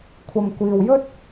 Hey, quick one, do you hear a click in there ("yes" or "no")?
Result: no